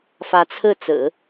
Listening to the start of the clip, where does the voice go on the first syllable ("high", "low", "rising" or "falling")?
rising